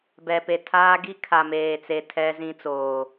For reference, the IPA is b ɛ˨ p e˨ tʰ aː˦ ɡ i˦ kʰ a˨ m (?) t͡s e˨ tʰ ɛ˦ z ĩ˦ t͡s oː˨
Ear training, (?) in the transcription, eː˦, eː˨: eː˨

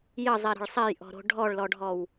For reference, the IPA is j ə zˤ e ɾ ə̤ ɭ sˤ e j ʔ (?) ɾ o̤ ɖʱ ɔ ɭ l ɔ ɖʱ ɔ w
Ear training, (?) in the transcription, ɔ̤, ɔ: ɔ̤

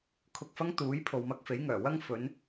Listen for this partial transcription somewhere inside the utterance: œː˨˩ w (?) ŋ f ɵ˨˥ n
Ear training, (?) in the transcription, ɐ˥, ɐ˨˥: ɐ˥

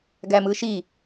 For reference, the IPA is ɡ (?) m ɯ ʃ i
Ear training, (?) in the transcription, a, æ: æ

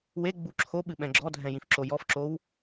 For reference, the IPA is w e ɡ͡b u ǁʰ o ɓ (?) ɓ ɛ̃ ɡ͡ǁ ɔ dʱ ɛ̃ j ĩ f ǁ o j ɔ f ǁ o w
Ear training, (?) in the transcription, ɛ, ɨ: ɨ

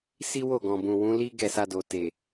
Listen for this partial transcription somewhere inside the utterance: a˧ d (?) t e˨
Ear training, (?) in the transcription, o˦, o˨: o˨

